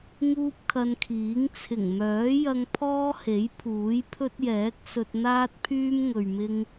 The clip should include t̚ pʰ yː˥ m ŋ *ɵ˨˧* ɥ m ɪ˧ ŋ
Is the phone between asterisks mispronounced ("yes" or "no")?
yes